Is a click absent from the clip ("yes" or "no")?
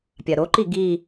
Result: no